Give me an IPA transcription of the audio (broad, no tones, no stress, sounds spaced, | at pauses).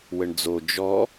w ə ɳ d͡z o d͡ʒ ɔ